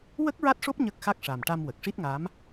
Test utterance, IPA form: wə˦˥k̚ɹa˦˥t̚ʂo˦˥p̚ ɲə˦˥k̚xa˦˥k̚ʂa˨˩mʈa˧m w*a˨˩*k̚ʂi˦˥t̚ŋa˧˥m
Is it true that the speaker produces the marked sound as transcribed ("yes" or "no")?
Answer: no